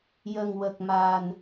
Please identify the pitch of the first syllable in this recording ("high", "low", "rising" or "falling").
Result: low